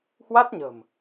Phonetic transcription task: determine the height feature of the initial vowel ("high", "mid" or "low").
low